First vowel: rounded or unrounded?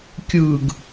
unrounded